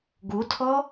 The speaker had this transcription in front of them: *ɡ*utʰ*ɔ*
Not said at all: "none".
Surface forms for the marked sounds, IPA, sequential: ɡ, ɔ

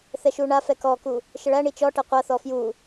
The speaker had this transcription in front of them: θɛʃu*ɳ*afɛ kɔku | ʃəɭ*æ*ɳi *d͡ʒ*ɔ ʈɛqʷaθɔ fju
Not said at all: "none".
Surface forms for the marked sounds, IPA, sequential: ɳ, æ, t͡ʃ

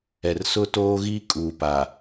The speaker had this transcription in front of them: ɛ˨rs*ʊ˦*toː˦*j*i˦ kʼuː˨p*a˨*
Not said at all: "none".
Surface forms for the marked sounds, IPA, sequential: ʊ˦, ɣ, a˨

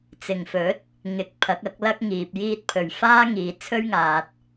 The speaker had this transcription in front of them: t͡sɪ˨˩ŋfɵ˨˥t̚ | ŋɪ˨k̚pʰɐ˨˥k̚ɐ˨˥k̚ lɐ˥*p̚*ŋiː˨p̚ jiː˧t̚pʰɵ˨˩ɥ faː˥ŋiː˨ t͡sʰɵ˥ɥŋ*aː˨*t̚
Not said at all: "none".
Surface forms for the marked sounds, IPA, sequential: k̚, aː˨

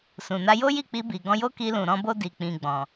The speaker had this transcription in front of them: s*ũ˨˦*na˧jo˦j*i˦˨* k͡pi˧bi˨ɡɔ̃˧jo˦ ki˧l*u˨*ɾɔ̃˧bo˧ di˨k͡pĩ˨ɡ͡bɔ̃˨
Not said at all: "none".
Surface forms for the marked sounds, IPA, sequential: ũ˨, i˦˨, ũ˨

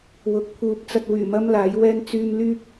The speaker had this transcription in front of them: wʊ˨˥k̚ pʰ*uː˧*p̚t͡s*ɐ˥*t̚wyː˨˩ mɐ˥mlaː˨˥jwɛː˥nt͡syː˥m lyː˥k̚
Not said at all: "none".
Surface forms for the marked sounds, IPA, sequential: uː˨, ɐ˧

